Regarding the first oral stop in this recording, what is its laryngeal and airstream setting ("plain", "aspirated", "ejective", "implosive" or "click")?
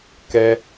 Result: plain